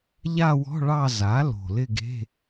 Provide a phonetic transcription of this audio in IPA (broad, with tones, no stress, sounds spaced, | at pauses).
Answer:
ʎ a˥˧ w ɔ̤˧˥˧ ɭ ɑ˥˧ z a˩˥ l o̤˨˩ l ɪ˥˧ ɡ e̤˧˥˧